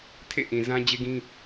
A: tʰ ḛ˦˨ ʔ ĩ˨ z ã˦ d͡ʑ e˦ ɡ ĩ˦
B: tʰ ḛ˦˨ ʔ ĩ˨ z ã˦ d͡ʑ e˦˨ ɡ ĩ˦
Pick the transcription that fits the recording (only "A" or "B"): A